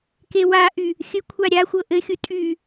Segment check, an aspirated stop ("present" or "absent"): present